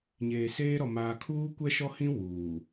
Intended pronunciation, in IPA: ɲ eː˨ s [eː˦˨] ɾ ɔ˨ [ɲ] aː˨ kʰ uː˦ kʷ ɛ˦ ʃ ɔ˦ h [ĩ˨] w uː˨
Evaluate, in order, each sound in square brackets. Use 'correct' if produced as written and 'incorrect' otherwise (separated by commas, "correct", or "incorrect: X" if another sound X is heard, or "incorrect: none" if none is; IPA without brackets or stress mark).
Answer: incorrect: eː˦, incorrect: m, incorrect: ĩ˦